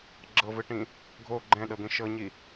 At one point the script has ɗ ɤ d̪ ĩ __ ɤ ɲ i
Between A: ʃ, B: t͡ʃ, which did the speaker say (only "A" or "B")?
A